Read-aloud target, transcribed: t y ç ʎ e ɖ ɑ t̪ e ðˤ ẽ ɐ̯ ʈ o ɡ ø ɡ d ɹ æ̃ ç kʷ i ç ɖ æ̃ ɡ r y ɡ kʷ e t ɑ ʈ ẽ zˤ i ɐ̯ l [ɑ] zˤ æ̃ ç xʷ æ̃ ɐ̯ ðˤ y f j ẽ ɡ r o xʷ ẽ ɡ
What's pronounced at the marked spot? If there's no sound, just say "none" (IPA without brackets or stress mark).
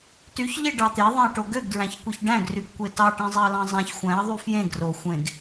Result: ɑ̃